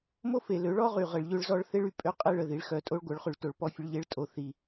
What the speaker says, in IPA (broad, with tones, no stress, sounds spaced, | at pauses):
m o˦ f e˨ l ø˨˦ ɭ ɔ˦ ʁ y˨ ʁ ə˨ ɭ ʎ ø˦ ɭ z ɔ˦ ɭ θ e˦ ɭ y˦˨ pʼ ø˦ qʼ e˦ ɭ ə˨ ð i˨ ɭ x œ˨ tʼ o˦ ɭ ɡʷ œ˨˦ ɭ χ y˨ ɭ t o˨ ɭ p ɔ˦ fʲ ə˦ ɭ ʎ e˦ ɭ tʼ o˨ θ i˨